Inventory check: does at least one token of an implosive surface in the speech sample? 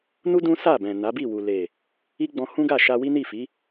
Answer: no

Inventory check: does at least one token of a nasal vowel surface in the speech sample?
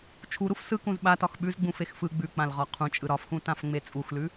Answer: yes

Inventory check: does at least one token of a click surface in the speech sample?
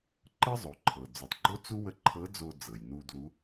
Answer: yes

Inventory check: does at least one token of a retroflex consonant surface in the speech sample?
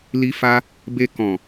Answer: no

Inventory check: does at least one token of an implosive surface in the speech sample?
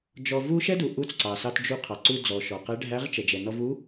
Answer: no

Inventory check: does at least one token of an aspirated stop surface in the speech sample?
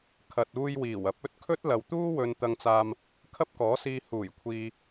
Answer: yes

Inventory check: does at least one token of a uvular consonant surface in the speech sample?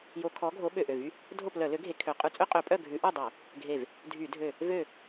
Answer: yes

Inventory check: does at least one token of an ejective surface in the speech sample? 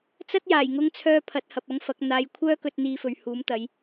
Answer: no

